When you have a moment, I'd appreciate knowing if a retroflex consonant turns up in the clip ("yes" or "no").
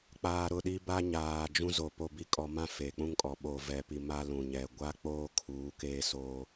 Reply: no